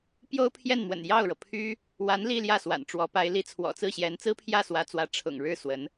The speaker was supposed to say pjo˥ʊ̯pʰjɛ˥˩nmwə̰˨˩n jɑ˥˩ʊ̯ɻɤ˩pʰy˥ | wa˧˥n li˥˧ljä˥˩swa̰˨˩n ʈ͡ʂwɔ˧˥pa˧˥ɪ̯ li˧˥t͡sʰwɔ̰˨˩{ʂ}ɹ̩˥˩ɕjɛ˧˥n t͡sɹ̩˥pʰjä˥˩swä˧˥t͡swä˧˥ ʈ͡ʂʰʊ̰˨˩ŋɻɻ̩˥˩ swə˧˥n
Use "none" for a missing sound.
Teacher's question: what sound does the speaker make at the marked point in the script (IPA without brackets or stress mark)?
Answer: t͡s